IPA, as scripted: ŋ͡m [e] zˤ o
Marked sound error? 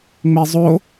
no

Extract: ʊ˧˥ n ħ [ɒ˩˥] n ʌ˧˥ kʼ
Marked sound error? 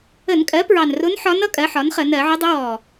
yes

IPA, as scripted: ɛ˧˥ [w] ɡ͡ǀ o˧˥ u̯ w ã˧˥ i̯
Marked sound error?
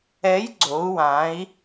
yes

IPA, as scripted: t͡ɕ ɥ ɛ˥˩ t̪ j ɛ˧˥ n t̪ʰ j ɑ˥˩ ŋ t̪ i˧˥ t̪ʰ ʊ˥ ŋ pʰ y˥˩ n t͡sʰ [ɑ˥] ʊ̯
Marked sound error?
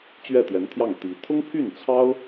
no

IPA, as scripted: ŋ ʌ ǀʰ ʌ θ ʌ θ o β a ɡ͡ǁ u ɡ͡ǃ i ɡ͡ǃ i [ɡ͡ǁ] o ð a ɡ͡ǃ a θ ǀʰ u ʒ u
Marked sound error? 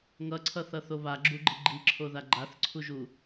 yes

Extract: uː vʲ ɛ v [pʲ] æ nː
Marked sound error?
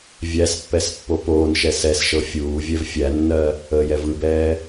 yes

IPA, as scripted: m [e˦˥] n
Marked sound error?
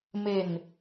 yes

